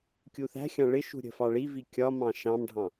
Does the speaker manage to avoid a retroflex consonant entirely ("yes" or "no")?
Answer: no